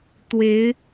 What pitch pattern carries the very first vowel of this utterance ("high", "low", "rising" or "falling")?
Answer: rising